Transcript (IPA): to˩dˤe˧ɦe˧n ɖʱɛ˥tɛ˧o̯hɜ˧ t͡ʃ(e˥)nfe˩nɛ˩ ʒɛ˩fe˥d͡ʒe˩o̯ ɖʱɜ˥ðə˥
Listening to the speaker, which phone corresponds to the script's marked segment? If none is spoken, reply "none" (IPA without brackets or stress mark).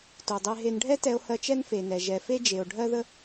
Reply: ɛ˥